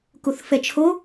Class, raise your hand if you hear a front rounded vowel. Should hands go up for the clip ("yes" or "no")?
no